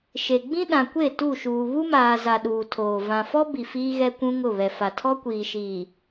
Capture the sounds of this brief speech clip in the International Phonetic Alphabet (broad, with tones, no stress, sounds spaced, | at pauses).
ʃ e˨ ɡ͡b ĩ˦ ɗ ã˨ kʷ e˦˨ t u˦˨ ʃ uː˨ β u˦ m aː˨ z a˨ ɗ uː˨ tʰ oː˨ v ã˨ f ɔ˦ b i˨ f iː˦ ɣ ɛ˦ kʷ ũ˦ ŋ ʊ˦˨ β ɛ˨ f a˨ tʰ ɔ˦ kʷ iː˨ ʃ iː˨